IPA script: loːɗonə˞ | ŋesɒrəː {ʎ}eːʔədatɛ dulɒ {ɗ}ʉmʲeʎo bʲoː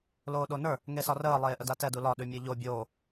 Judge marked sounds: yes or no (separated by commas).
no, yes